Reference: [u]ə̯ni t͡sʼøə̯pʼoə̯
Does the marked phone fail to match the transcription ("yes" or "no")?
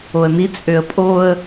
yes